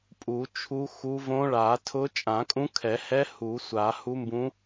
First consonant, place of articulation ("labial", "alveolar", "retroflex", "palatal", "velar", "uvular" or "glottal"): labial